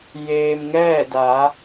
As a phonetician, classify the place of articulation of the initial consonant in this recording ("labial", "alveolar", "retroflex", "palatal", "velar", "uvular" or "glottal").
palatal